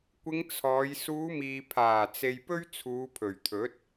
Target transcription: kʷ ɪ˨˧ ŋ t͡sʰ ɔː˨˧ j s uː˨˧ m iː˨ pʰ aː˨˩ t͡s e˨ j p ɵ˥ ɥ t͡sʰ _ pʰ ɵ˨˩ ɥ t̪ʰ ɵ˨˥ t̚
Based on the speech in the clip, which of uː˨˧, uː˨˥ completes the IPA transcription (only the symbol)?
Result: uː˨˧